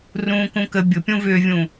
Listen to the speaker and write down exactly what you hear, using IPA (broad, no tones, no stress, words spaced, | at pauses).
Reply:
rũːkũkə bʲʊpʲũ vʏːvʲũ